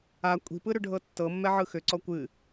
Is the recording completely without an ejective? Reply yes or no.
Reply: no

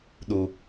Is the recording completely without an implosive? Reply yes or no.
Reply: no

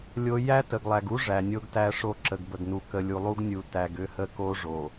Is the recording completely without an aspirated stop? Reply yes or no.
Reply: yes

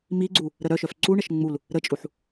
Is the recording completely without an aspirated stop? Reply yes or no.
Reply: yes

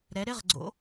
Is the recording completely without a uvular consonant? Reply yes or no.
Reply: no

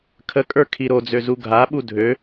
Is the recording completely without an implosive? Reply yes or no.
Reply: no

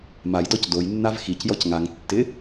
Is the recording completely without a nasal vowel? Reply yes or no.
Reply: yes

